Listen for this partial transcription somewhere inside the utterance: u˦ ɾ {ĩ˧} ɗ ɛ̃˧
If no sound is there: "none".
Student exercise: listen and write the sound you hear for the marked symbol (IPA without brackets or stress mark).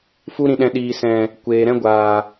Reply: ĩ˧